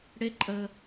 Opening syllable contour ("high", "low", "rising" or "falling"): rising